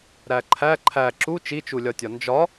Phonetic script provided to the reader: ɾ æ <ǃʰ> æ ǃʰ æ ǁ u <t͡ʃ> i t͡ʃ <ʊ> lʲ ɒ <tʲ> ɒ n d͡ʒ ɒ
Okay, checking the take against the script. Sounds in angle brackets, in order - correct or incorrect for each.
correct, correct, incorrect: u, correct

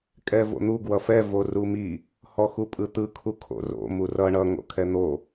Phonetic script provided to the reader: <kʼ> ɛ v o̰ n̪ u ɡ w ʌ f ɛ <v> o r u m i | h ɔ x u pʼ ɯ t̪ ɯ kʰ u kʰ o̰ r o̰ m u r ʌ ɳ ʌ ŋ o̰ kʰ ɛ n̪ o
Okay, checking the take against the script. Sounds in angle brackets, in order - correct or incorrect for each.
correct, correct

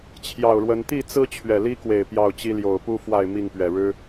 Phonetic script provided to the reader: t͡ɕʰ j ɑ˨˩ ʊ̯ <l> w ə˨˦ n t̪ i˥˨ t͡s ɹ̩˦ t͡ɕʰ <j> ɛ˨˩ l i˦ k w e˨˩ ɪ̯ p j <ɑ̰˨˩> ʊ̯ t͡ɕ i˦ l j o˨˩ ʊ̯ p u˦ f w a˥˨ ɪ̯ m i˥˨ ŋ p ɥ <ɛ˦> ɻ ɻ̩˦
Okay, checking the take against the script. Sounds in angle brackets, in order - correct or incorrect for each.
incorrect: ɻ, incorrect: ɥ, incorrect: ɑ˥˨, incorrect: ɛ˨˩

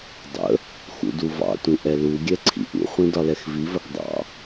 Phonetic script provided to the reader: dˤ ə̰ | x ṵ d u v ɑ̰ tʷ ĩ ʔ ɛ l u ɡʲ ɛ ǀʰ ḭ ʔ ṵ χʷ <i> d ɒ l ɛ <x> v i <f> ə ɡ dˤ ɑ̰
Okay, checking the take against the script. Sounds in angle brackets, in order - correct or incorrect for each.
incorrect: ĩ, correct, incorrect: v

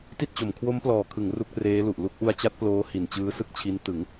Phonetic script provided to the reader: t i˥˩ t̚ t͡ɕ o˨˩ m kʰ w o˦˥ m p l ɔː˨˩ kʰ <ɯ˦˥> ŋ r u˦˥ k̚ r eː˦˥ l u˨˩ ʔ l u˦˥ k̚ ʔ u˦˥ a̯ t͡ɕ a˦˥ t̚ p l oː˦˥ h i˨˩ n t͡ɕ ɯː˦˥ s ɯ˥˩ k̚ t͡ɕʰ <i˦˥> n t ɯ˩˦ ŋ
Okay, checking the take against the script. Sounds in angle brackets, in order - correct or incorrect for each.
incorrect: ɯ˩˦, correct

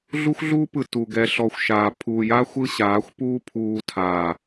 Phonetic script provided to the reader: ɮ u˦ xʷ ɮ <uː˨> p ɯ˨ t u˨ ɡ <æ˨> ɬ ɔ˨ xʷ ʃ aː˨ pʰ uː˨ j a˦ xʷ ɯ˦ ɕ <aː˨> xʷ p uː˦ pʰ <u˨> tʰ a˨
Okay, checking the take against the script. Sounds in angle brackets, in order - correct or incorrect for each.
incorrect: uː˦, incorrect: ɛ˨, incorrect: aː˨˦, incorrect: uː˨

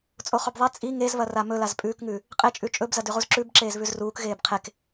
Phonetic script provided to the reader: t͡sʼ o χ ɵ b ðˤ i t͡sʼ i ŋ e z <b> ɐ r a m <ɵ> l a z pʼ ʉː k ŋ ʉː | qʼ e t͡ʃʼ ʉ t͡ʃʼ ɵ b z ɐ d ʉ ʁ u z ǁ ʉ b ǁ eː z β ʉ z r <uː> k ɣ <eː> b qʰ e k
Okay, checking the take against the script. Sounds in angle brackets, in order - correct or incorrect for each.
incorrect: β, correct, correct, correct

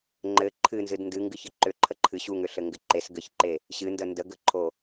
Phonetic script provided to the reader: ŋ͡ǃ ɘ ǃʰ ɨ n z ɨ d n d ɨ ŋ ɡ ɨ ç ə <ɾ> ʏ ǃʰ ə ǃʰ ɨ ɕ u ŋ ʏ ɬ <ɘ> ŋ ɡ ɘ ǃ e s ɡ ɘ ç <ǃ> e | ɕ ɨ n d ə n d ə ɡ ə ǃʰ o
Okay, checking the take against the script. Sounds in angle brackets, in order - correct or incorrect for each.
incorrect: ǃ, correct, correct

